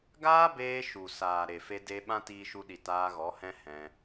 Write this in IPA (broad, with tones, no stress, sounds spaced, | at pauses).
ɡ aː˦ b eː˧ ʃ u˨ s aː˨ ɾ e˨ f e˧ d e˧ ɓ ã˦ t iː˧ ʃ u˧ ɗ i˨ t aː˧ ɣ ɔ˨˦ h ɛ̃˦ h ɛ̃˧